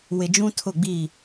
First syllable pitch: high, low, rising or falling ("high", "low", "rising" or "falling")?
low